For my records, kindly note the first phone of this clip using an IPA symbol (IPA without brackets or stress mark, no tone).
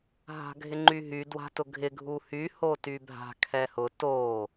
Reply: ɦ